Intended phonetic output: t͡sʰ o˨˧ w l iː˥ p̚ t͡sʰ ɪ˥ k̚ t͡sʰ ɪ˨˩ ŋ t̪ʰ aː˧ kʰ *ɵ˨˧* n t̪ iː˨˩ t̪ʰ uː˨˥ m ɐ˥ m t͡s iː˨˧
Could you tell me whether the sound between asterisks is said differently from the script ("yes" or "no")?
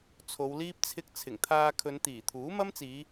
no